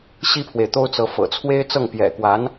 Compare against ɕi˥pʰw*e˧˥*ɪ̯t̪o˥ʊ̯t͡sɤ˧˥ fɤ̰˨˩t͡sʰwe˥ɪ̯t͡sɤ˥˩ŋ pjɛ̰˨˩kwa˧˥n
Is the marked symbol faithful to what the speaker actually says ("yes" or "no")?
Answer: no